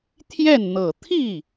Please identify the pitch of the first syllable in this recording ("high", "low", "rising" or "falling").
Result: falling